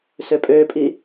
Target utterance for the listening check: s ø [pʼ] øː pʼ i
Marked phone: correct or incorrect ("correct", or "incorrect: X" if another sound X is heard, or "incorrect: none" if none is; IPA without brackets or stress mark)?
correct